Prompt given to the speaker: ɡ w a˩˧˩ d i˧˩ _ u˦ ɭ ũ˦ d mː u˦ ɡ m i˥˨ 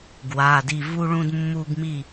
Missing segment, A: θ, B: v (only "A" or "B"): B